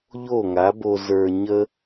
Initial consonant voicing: voiced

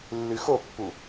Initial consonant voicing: voiced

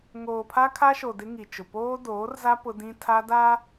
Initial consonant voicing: voiced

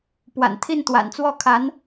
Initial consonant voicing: voiceless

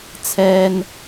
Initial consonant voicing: voiceless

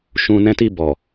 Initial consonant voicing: voiceless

